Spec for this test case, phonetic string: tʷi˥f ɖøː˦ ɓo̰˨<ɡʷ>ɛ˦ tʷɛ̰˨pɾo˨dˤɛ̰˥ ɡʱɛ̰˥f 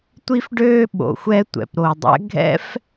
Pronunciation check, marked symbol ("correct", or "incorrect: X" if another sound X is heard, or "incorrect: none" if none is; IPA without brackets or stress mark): incorrect: xʷ